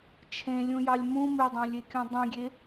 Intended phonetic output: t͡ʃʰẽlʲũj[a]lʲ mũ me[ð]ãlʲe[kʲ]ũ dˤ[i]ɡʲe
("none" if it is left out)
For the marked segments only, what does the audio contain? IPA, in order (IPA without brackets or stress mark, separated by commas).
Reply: ɑ, dˤ, kʲ, ĩ